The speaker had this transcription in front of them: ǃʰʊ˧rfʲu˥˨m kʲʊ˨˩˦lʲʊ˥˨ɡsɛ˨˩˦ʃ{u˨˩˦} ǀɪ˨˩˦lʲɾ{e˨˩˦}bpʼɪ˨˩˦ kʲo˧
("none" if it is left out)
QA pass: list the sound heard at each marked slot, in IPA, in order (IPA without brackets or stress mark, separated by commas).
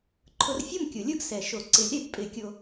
o˨˩˦, e˨˩˦